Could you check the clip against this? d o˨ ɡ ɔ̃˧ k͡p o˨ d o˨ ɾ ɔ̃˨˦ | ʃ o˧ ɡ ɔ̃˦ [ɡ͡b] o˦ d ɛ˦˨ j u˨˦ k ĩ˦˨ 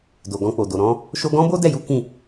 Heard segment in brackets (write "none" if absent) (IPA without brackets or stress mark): b